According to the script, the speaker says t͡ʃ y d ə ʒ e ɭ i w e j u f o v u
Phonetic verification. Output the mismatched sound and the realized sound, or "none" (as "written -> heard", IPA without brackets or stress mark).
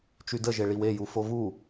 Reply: none